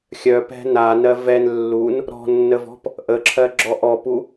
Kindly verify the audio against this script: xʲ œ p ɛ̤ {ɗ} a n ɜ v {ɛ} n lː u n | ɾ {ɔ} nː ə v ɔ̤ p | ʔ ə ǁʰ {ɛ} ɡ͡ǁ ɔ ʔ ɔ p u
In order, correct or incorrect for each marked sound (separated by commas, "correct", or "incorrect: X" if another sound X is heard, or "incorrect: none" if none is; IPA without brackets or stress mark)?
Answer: incorrect: n, correct, incorrect: ɔ̤, incorrect: ɜ